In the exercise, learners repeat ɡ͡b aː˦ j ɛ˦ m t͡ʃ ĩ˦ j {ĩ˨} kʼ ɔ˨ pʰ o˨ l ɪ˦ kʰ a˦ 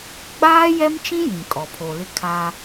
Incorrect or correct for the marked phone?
correct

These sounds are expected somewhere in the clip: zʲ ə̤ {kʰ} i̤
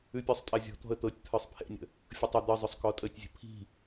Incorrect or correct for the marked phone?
incorrect: pʰ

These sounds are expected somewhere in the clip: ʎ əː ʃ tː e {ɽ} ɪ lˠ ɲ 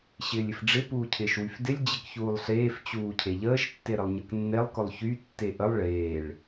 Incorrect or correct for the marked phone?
incorrect: ɾ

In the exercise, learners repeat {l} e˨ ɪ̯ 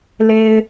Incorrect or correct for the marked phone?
correct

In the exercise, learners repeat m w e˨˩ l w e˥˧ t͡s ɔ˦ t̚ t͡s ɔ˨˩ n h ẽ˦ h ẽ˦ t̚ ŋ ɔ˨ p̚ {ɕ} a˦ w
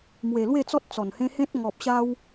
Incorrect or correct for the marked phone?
correct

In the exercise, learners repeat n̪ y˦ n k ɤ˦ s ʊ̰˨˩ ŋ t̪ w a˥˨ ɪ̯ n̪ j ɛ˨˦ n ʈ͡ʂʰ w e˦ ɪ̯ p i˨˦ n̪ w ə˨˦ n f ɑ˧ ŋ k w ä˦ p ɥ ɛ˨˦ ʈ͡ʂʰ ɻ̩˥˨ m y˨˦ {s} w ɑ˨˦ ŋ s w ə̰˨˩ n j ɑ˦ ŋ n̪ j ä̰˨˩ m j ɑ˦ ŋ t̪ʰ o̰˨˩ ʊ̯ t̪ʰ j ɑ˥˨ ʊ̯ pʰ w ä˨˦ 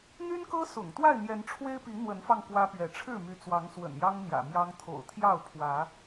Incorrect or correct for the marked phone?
incorrect: t͡s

